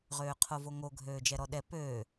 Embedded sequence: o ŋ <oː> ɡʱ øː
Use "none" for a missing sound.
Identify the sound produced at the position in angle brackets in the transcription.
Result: o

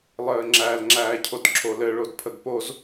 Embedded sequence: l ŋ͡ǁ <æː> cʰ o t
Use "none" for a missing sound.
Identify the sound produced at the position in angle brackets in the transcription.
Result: æː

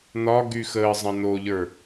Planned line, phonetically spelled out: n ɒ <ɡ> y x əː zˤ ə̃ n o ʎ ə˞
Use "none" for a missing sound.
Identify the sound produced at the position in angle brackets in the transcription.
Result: ɡ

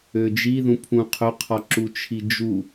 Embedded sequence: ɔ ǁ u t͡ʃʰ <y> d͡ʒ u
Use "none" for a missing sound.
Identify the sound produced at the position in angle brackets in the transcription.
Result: i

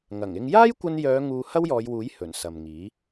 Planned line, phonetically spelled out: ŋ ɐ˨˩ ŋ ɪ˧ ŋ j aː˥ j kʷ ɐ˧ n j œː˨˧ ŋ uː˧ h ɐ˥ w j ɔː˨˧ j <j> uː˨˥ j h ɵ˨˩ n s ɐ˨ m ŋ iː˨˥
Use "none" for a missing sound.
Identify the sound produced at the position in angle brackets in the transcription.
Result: w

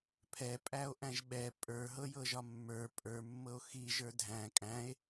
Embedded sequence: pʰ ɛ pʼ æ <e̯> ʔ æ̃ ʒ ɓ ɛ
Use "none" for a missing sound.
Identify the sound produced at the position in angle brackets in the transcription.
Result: o̯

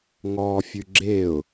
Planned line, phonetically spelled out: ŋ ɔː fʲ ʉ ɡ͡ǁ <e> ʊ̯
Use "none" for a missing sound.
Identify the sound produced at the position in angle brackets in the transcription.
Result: e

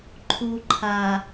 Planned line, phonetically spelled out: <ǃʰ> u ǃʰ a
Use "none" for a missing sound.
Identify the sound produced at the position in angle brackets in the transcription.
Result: ǃʰ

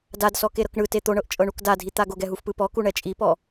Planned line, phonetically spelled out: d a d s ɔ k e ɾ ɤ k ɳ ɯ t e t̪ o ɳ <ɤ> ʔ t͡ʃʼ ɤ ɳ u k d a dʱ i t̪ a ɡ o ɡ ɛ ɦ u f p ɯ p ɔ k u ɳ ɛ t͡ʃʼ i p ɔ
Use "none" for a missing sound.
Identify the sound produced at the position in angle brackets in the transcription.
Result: ɤ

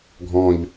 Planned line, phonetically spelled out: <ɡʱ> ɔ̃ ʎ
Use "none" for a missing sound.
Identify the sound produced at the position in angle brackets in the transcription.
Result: ɡʱ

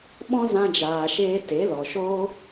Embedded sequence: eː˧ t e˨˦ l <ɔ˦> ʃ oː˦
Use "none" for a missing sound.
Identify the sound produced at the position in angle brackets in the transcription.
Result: ɔ˨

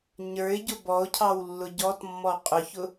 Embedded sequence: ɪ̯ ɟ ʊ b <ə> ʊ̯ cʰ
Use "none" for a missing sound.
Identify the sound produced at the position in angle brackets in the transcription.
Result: ɔ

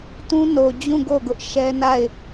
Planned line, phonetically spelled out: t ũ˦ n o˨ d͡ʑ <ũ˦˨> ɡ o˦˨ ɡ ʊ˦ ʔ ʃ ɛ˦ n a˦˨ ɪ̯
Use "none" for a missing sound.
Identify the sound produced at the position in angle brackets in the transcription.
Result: ũ˦˨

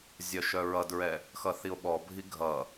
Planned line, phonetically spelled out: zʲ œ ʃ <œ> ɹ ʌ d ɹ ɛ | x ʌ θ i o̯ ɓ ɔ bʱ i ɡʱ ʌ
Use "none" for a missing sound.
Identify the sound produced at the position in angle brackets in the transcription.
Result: œ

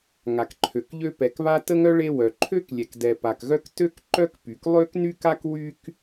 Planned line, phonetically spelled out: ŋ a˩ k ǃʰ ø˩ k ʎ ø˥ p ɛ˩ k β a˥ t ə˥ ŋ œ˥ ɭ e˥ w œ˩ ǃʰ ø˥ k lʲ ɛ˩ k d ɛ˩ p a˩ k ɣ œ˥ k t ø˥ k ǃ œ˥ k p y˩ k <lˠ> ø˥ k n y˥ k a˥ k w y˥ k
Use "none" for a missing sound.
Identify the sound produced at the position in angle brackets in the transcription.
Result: lˠ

